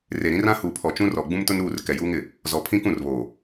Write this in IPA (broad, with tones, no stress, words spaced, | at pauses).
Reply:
re˨ ɾĩ˦rã˦ huː˨pʰɔ˨t͡ʃũ˦rɔ˨ ɡ͡bũ˦mtʊ˦nɾuː˦˨r kɛ˨juː˦ŋɪ˨ | zɔ˨pʰĩ˦kũ˦˨rβoː˨